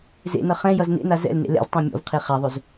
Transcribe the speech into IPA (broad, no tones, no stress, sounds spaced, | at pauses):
z ḛ n ʌ χ ɛ̃ j ʌ z n ḛ n a z ɛ̰ l n ḛ l ɛ̰ z tˤ ã mʲ ɔ̰ v qʰ e χ a ðˤ ɵ z